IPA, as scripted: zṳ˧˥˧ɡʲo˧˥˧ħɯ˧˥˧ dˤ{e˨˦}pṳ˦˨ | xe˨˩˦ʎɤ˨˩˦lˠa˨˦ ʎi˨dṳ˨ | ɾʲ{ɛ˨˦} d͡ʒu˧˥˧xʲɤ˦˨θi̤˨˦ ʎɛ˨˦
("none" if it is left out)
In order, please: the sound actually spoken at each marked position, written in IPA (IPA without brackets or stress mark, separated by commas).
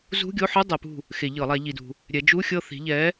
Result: ɛ˨˦, ɛ˨˦